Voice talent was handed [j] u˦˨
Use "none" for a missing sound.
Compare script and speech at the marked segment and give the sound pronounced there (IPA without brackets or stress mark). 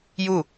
j